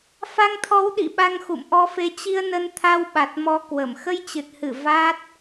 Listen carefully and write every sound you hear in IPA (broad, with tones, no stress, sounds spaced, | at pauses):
f a˧ ŋ t̪ʰ ɔ˨˦ w ɗ ḭ˧˨ ɓ a˧ ŋ x ṵ˧˨ m ʔ ɔ˧ f e˨˦ t͡ɕ i˧ ə̯ n ə˧ n t̪ʰ a˧ w ɓ a˨˩ t̚ m ɔ˨˦ k w ə˧˩ m x ə˧ j t͡ɕ ɨ˨˩ t̚ h ɨ˧˩ v a˦˥ t̚